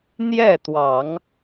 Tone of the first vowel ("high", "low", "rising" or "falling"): falling